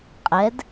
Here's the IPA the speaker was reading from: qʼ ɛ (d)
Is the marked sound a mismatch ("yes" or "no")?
no